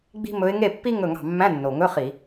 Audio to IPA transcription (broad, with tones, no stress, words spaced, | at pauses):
ɡ͡bi̤˥mɵ˧˥ɪ̯ ŋe˥˩pːi˥ ŋɵ˥˩ŋɑ̤˥˩ mːæ̃˧˥˧nːo˨˩ŋɵ˧˥˧ χi˧˩˧